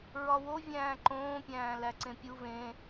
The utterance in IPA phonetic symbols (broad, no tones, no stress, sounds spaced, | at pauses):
ɹ ɒ w o vʲ æ̃ː ǃ õː pʲ æ̃ː l æ ǀ ẽ pʲ u v ẽ